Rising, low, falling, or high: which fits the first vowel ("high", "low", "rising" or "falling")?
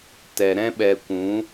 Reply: low